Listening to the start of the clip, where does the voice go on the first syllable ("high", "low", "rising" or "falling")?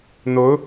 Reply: rising